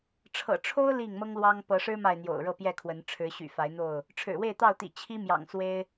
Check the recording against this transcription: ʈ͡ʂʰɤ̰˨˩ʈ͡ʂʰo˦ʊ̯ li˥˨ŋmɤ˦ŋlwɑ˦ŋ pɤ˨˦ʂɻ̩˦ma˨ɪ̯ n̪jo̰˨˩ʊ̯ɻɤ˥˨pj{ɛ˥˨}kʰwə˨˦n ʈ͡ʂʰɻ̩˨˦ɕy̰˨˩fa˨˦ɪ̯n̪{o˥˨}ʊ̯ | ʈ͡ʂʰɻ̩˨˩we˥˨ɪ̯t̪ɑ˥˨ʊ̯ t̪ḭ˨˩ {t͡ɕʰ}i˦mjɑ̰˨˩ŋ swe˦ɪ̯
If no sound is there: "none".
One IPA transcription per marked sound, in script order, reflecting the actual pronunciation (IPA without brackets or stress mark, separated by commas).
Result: ɛ˥˨, o˥˨, t͡ɕʰ